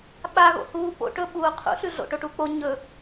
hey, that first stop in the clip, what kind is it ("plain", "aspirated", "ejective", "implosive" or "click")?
implosive